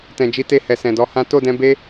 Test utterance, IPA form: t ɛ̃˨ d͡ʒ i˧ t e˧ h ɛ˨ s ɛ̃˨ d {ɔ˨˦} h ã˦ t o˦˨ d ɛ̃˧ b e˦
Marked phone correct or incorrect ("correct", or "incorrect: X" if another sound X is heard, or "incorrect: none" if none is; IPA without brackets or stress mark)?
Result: correct